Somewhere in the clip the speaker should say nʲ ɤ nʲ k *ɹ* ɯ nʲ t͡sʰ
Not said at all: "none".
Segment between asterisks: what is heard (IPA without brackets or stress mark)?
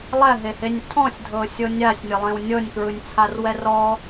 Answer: ɹ